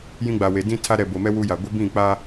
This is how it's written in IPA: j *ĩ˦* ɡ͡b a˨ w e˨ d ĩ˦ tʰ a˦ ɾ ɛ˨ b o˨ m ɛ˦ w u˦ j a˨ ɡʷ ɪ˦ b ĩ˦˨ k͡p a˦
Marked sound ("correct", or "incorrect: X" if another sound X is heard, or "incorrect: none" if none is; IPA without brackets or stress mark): correct